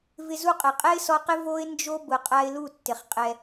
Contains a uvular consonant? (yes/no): yes